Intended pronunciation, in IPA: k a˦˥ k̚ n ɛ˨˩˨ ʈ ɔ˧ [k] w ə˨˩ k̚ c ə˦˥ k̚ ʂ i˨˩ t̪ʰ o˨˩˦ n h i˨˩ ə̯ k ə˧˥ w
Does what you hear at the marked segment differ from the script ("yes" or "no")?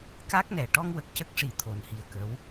yes